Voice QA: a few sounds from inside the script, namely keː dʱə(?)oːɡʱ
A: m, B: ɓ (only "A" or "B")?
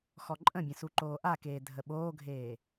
B